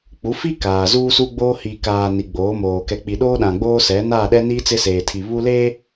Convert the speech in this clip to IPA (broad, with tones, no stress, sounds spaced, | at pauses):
k͡p u˨˦ f i˦ k aː˨ z uː˦ s u˦ ɡ͡b oː˦ h iː˨ k aː˨ n i˨ ɡ͡b oː˨˦ m oː˨ k ɛ˨ k͡p i˨ ɗ oː˦ ɗ ã˨ ɡ͡b oː˦ s ɛ˨˦ n aː˦˨ ɗ ɛ˦ n iː˦ t͡s ɪ˦ s eː˨ tʰ i˨ β u˦ l eː˦